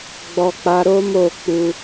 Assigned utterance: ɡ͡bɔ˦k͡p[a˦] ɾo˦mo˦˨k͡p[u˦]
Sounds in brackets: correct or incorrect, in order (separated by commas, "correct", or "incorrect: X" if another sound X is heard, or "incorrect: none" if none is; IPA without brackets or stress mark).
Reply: correct, incorrect: u˧